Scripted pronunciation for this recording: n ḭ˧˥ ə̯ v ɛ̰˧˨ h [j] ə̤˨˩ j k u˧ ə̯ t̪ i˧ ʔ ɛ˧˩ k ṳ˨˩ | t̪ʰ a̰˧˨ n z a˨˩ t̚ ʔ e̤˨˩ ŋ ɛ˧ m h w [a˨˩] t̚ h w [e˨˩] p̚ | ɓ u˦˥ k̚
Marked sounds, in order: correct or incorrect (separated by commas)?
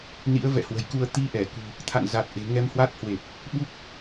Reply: incorrect, incorrect, correct